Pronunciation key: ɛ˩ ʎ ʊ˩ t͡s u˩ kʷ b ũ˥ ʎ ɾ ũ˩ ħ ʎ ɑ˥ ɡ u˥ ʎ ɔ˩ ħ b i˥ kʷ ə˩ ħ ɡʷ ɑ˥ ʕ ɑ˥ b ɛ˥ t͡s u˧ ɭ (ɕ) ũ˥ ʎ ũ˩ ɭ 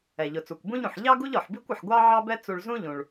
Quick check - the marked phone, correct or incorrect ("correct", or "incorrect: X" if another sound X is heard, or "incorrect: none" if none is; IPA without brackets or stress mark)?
incorrect: z